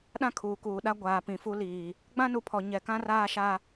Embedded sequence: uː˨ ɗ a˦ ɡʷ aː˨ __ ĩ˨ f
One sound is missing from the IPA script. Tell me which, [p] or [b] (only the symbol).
p